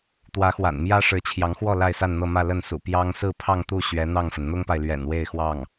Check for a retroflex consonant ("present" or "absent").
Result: present